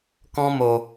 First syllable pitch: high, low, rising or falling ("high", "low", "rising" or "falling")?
high